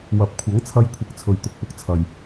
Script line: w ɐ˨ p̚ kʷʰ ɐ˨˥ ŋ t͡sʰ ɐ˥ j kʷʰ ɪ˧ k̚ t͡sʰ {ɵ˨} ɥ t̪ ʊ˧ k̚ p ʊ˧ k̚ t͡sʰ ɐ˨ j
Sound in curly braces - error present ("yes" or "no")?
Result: no